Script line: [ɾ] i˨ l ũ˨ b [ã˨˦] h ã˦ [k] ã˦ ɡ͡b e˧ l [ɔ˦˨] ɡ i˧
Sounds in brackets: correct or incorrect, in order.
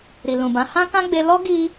correct, correct, correct, incorrect: ɔ˦

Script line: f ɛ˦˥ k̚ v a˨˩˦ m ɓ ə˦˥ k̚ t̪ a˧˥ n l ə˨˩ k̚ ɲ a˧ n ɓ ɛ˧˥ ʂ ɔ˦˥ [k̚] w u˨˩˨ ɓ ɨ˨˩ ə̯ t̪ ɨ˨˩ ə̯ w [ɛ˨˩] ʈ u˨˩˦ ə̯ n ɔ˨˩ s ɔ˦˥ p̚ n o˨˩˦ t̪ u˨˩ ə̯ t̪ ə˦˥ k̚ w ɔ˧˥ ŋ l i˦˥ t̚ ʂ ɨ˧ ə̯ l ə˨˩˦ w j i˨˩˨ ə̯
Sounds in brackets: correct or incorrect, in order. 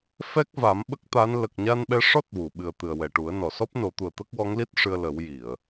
incorrect: t̚, correct

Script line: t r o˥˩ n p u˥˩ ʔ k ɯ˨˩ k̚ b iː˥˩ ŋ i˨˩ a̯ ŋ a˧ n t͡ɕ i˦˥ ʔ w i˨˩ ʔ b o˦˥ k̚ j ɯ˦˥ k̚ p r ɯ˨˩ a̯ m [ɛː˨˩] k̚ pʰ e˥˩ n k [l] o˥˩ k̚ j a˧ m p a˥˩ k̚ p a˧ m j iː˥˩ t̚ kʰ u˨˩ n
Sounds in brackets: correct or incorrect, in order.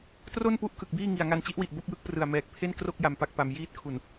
correct, incorrect: r

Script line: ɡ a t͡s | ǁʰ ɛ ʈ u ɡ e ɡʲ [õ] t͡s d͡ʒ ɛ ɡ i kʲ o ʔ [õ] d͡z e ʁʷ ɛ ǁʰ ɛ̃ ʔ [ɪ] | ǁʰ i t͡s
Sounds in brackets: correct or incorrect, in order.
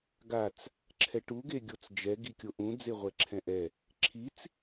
incorrect: o, incorrect: ũ, incorrect: ɛ

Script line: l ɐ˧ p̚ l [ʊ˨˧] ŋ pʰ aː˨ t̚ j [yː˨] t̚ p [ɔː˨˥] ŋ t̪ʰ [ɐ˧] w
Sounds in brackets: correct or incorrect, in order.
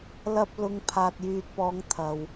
correct, correct, incorrect: ɔː˨˧, incorrect: ɐ˨

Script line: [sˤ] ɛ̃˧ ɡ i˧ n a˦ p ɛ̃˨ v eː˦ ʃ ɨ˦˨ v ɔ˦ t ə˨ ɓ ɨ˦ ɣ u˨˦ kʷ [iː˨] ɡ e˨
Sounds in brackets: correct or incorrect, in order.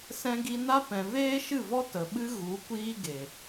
incorrect: s, incorrect: iː˦

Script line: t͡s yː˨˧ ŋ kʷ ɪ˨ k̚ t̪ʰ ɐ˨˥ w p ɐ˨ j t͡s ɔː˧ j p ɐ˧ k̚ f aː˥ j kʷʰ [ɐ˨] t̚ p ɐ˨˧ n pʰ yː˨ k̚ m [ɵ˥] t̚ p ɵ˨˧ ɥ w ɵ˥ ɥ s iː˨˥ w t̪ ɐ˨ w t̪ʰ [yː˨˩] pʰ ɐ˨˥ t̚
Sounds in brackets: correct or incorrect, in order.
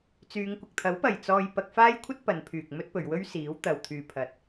incorrect: ɐ˥, correct, incorrect: yː˨

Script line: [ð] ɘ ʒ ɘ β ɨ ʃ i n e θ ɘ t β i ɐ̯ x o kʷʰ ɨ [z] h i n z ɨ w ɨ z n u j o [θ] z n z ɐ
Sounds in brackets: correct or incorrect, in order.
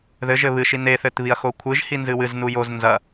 correct, incorrect: ʒ, incorrect: none

